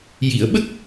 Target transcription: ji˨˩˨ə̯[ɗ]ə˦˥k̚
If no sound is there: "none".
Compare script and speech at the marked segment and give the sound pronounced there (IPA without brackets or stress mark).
ɓ